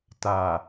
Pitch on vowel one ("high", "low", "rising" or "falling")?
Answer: low